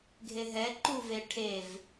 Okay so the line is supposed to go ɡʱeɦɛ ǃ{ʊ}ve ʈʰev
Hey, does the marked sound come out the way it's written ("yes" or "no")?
no